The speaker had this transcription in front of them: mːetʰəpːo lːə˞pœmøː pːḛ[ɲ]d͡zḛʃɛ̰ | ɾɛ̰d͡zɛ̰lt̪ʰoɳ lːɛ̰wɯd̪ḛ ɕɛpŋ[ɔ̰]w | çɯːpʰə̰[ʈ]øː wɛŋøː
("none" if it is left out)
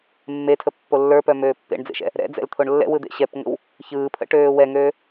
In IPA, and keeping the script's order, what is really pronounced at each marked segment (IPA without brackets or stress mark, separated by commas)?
ɳ, ə̰, ʈ